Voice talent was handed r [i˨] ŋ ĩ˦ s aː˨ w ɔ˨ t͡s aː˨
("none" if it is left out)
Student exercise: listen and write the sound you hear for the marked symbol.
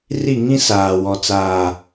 i˦˨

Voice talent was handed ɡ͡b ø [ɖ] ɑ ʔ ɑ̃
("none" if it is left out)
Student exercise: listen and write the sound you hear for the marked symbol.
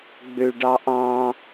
ɖ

